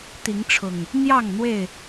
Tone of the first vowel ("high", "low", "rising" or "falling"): rising